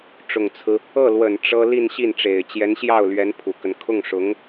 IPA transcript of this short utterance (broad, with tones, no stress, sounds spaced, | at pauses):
ʈ͡ʂ ʊ˨˩ ŋ t͡sʰ ɹ̩˦ | ɤ˥˩ l w ə˨˩ n ʈ͡ʂ ɤ˥ l i˥˧ n ɕ i˥˩ n ʈ͡ʂ e˨˩ ɪ̯ t͡ɕ j ɛ˧˥ n ɕ j ɑ˥˩ ʊ̯ l ɥ ɛ˧˥ n pʰ u˨˩ k ə˦ n kʰ ʊ˥˩ ŋ ʂ ʊ˧˥ ŋ